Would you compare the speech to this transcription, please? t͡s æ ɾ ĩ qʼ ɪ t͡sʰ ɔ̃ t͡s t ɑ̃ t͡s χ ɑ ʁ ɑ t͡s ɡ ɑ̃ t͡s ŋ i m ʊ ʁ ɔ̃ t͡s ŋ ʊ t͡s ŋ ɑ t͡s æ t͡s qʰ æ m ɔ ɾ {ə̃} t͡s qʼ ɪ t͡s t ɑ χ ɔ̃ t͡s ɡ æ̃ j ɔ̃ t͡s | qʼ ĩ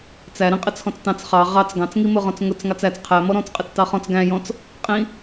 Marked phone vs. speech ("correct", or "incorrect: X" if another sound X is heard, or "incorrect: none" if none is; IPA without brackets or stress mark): incorrect: ɔ̃